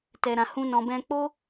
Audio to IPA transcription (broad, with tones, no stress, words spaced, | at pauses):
tɛ˧ɾã˧ hũ˦nɔ̃˧ bɛ̃˧k͡po˦